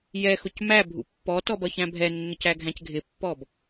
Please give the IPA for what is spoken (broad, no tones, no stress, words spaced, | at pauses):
jɛxʊc mæ bʱṵpːɔtɔb ʌçæ̃bʱɛnːʊc æɡʱæ̃cɡʱɪpːɔb